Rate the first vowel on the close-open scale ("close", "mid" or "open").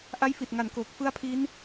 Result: open